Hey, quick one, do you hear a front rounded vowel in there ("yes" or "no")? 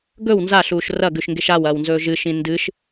no